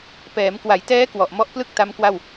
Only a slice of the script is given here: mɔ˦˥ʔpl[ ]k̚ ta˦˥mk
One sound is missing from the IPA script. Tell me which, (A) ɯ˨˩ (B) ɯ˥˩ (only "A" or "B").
B